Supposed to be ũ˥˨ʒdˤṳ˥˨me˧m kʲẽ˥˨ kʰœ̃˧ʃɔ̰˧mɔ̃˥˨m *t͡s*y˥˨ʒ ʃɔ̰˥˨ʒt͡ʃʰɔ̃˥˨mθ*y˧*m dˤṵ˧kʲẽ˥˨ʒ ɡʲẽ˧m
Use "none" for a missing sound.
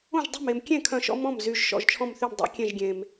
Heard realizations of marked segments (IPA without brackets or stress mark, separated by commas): z, y˥˨